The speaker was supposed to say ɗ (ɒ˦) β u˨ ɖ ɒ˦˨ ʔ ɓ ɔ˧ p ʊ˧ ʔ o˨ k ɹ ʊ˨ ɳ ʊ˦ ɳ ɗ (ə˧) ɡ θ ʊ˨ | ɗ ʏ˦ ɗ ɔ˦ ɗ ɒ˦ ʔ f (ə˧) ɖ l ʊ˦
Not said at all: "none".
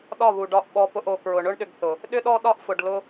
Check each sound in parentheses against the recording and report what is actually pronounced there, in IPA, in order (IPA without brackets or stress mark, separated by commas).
ɒ˦˨, ʏ˧, ʊ˧